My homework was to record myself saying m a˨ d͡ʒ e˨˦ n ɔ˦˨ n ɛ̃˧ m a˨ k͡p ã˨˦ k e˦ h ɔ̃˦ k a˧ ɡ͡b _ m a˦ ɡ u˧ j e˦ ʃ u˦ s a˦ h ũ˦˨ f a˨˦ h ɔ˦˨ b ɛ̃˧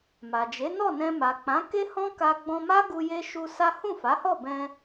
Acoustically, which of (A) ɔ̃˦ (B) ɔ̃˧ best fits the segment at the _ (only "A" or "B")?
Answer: B